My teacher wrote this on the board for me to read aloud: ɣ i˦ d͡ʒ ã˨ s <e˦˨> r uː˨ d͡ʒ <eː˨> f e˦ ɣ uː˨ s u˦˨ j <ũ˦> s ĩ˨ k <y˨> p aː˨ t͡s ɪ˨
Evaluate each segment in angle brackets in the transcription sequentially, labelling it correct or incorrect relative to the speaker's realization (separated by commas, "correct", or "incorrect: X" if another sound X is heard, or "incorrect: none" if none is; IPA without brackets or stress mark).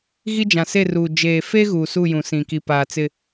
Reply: correct, correct, incorrect: ũ˨, incorrect: i˨